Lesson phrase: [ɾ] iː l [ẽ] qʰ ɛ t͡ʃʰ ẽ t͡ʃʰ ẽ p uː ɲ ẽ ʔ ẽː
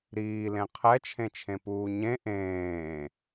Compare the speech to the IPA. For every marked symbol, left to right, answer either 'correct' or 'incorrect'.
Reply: correct, correct

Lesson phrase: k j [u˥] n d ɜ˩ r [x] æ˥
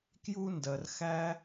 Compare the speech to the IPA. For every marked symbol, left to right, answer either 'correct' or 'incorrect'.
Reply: correct, correct

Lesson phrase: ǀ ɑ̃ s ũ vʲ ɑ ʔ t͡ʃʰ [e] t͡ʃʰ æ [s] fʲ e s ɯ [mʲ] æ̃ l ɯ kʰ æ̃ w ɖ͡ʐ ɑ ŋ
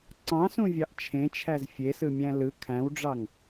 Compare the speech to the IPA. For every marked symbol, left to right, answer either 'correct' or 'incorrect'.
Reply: incorrect, incorrect, correct

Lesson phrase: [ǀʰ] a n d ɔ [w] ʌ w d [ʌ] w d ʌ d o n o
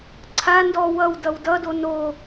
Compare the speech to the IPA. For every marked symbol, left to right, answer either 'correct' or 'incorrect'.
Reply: correct, correct, correct

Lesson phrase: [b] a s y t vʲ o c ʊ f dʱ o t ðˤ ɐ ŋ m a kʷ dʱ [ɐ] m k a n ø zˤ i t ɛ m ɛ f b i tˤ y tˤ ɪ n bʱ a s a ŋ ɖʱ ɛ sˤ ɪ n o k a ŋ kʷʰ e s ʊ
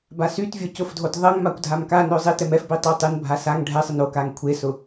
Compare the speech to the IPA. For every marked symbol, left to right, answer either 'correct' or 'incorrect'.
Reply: correct, incorrect

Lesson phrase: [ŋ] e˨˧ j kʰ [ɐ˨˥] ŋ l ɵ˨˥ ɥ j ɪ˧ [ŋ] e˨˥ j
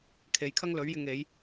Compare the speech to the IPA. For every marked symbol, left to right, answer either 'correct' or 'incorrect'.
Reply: incorrect, incorrect, correct

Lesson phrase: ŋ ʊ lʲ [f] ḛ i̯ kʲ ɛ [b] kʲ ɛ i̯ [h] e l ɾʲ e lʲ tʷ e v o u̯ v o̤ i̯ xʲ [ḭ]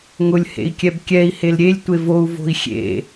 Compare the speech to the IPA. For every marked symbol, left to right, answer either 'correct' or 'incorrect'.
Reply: incorrect, correct, correct, incorrect

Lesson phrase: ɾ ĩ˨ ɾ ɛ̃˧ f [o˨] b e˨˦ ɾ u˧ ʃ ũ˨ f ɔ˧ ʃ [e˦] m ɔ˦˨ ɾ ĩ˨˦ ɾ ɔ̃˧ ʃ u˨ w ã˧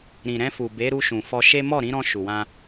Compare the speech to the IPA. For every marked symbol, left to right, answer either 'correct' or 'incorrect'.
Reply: incorrect, correct

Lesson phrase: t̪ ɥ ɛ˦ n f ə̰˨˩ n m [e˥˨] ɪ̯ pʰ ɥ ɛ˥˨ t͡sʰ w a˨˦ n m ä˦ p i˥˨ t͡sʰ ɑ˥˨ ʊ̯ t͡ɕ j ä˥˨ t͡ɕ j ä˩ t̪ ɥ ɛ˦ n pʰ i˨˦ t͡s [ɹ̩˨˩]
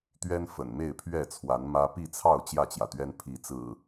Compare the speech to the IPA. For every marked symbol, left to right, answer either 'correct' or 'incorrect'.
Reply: correct, correct

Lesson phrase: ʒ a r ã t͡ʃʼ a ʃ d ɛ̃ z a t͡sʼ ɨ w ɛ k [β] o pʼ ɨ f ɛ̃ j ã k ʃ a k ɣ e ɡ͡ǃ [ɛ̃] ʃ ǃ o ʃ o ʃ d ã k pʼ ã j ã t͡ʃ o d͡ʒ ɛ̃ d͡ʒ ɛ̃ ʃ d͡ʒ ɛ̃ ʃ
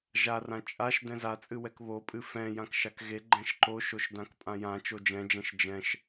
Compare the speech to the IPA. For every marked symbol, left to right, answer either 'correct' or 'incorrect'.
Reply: correct, correct

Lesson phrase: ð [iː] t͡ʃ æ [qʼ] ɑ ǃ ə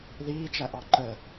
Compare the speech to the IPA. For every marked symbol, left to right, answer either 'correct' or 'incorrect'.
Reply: correct, incorrect

